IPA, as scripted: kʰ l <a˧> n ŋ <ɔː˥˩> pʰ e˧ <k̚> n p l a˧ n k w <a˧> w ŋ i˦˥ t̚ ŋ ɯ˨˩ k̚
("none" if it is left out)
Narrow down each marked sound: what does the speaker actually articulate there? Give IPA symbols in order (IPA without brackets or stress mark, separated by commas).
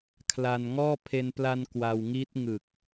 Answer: a˧, ɔː˥˩, none, a˧